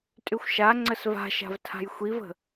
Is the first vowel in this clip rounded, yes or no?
yes